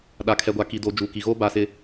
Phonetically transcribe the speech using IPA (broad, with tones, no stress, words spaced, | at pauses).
ɗa˨kʰɛ˨ɡʷa˨ ki˨doː˨ d͡ʒuː˨ki˨ɣoː˦ ba˦sɪ˦